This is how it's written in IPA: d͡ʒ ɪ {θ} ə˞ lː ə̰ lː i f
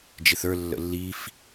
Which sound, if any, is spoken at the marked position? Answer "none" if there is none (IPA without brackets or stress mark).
θ